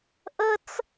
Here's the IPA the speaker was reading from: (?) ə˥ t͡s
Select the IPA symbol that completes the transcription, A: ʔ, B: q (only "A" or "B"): A